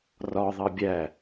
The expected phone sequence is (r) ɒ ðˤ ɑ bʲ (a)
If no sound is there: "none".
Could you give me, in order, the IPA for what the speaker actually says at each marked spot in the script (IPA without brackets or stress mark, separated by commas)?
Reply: r, æ